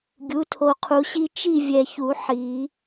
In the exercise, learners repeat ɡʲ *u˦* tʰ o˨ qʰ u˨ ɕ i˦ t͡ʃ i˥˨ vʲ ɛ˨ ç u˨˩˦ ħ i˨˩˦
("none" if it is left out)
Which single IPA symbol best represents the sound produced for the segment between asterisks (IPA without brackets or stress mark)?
u˩˥